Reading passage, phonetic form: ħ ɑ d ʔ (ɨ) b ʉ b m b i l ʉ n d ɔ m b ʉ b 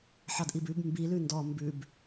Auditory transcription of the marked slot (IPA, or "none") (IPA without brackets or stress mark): i